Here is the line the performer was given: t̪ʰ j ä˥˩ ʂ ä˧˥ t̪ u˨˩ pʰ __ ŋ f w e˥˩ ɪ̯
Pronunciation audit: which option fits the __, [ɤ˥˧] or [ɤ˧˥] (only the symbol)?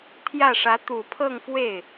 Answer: ɤ˥˧